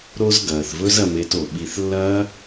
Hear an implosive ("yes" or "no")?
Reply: yes